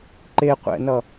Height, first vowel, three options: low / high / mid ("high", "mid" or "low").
mid